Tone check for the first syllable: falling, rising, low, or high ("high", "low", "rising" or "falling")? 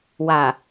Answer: low